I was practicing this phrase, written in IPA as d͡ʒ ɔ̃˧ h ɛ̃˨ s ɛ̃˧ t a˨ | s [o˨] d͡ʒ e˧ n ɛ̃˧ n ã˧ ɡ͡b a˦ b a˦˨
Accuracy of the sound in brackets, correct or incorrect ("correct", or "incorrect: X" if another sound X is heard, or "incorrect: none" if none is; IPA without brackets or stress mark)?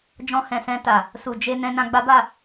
incorrect: u˨